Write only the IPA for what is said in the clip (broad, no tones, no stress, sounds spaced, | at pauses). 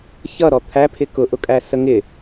ç ʌ ɾ ɔ t̪ʰ æ pʰ ɪ k ʊ ʔ ʊ kʼ æ s ə ŋ ɪ